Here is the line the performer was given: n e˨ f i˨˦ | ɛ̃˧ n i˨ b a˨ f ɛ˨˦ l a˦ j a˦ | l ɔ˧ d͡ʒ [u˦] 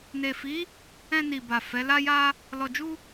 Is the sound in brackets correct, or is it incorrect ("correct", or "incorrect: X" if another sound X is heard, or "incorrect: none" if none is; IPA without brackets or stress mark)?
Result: correct